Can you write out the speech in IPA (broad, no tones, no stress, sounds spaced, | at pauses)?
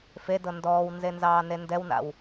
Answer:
f e d ɤ n d ɔː w n z e n z ɑː n e n d ɛ w n a̰ w